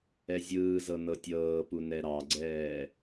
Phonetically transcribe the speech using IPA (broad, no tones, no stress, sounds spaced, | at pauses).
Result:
ɛ zʲ ɯː z ɤ n ɤ tʲ ɤː p u n ɛ ɾ ɑ ɡ͡ǀ ɛː